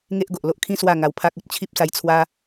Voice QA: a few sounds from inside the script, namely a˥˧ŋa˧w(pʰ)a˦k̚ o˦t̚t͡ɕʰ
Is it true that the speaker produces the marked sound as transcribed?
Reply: yes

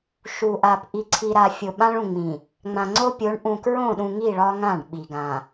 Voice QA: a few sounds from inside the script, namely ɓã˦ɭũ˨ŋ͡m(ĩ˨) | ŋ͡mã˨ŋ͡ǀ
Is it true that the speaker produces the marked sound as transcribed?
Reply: yes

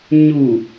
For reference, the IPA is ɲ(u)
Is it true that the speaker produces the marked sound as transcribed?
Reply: yes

